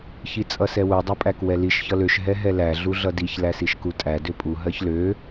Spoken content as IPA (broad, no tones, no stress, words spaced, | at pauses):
çit͡sʼʌsɛwu dˤøpʼækwɛliʃ çʌløʃ ɦɛɦɛlæ ɮuɮʌdiç læsiʃkutʼæ døpʼu ɦɜçlø